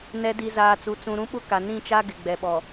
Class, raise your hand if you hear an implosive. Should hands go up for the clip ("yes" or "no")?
yes